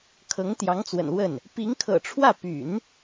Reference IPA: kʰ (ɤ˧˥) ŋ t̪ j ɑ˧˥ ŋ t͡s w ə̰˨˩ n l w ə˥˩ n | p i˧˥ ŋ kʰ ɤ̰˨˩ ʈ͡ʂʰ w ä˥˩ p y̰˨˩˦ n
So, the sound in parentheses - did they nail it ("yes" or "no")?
yes